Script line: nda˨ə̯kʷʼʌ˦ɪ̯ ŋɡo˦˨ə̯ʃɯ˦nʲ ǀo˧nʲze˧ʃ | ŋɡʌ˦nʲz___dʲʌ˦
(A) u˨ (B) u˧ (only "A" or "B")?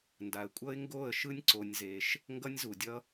A